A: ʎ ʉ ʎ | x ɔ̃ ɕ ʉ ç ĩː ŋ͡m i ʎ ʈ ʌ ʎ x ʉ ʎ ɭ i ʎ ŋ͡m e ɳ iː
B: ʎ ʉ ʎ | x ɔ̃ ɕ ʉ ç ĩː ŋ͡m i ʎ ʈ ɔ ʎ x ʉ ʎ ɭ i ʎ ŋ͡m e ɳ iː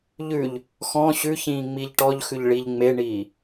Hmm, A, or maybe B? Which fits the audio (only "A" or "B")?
B